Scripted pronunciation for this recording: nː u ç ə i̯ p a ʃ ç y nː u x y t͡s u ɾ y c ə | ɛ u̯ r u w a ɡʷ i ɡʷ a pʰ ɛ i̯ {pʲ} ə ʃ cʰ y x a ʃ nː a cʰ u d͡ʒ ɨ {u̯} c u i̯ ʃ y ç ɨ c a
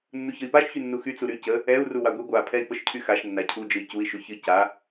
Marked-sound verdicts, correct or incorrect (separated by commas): incorrect, incorrect